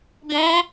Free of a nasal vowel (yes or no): no